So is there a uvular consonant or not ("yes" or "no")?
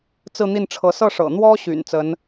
no